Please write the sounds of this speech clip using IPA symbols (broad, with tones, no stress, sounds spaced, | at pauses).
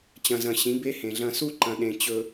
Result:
t͡ɕ ɐ̃˨ z ɐ̃˨ ɕ ĩ˨˦ b e˦ h ẽ˨ ɮ ɐ̃˨ s u˦ ǃ ɐ̃˨ ɗ ẽ˨ t͡ɕ ɵ˨